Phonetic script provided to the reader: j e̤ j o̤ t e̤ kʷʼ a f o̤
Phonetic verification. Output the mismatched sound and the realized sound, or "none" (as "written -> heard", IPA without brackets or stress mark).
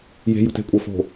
none